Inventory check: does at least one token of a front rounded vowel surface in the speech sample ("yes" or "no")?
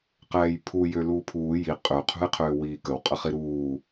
yes